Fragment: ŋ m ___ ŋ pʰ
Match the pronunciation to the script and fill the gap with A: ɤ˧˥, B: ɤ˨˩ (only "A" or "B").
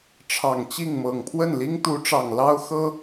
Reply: B